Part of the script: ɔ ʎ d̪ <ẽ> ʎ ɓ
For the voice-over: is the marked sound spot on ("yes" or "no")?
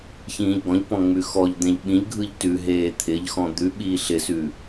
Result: yes